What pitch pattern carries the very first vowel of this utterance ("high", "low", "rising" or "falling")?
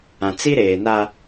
low